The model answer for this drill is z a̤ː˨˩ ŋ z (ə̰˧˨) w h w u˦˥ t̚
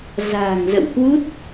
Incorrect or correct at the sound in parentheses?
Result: correct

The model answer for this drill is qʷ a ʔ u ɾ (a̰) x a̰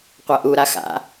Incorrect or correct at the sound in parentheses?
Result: incorrect: a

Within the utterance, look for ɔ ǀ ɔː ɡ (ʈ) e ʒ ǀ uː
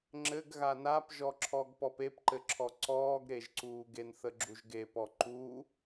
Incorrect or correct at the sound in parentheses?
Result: incorrect: ɾ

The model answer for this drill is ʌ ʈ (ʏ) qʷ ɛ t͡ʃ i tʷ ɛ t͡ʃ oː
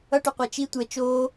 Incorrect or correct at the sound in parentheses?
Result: correct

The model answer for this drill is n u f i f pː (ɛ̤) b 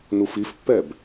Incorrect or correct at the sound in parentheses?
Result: incorrect: ɛ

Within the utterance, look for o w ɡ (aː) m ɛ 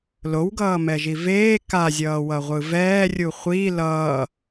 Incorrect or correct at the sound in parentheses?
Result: incorrect: ʌː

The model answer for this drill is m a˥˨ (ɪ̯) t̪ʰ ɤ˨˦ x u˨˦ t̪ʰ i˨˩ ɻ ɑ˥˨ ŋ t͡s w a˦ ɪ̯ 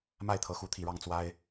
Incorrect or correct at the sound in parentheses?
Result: correct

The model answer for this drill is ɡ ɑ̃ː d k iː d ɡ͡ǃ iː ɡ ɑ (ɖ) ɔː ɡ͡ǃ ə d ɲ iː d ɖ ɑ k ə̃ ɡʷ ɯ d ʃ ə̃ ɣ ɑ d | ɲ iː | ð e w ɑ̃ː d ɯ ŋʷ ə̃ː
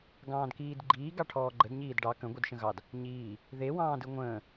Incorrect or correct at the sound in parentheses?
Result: incorrect: ʈʰ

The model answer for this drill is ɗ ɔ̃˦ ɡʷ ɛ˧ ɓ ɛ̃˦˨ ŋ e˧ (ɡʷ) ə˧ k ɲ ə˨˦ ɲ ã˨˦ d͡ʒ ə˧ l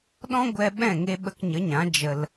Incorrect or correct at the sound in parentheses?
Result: incorrect: ɓ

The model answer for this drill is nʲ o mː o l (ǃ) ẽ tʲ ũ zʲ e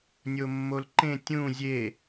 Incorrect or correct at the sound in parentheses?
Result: correct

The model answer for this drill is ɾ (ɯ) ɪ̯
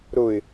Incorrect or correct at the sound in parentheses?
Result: incorrect: ʊ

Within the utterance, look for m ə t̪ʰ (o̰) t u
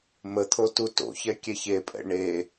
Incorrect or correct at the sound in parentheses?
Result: incorrect: o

